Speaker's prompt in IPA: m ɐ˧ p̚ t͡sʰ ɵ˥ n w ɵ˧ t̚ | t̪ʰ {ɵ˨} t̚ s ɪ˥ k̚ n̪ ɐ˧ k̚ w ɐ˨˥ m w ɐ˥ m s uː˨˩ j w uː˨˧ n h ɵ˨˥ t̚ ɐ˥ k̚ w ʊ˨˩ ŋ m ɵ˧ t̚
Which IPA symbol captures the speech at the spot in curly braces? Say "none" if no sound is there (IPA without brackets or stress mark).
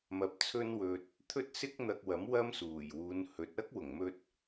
ɵ˥